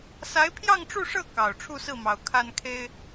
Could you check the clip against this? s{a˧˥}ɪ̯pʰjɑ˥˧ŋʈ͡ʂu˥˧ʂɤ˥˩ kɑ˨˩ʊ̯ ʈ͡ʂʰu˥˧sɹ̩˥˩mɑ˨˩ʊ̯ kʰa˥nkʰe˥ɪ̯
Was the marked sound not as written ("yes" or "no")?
no